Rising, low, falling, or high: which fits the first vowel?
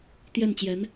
falling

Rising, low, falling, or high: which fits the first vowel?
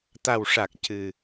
low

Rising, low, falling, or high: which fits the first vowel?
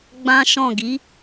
high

